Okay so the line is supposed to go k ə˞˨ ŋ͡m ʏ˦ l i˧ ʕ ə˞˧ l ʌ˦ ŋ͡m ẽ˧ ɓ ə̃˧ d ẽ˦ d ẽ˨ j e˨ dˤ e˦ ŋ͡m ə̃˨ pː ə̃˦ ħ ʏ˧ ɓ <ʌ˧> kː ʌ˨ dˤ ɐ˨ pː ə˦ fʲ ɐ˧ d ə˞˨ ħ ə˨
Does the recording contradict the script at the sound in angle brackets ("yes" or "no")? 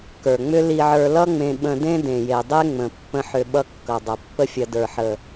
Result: yes